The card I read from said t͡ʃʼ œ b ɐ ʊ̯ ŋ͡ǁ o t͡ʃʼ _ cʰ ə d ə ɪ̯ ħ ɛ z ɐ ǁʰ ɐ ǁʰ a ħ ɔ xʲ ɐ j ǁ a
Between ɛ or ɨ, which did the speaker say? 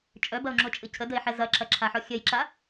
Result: ɨ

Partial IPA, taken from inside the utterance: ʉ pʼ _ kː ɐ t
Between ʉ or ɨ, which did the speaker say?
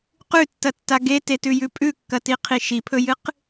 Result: ʉ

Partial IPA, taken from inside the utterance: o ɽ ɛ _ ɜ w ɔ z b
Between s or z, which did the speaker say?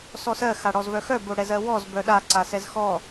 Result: z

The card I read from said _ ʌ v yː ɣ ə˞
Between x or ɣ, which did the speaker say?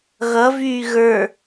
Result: ɣ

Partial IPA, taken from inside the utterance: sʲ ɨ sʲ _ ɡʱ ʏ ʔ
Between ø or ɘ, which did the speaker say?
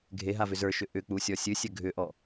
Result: ɘ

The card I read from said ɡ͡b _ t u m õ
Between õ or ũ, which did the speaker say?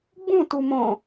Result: ũ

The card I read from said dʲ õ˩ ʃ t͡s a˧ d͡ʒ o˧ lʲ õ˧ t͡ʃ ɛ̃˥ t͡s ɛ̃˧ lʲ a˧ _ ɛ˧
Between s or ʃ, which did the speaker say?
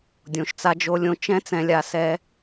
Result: s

